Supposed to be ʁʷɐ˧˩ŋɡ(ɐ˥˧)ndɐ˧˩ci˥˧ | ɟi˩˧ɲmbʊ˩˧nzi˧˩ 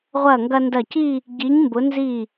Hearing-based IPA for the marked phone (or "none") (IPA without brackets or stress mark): ɐ˧